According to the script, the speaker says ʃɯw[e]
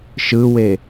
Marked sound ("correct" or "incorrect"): correct